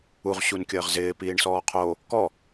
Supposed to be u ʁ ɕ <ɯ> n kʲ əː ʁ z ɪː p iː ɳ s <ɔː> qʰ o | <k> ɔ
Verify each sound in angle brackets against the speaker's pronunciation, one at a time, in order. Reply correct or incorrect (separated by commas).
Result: incorrect, correct, correct